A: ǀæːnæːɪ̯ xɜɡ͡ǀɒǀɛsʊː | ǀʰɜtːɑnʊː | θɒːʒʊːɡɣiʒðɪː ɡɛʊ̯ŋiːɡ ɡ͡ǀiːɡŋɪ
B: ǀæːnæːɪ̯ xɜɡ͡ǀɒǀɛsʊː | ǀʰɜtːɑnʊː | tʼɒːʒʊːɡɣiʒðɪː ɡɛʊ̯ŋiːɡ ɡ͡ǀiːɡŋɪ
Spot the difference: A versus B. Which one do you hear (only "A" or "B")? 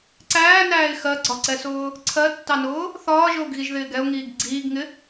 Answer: A